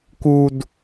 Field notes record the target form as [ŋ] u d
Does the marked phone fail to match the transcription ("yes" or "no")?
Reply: yes